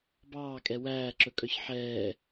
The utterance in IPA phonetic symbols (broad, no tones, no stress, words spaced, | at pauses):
bɑːkʼɛ wæːǁɵkʼœç ħɛː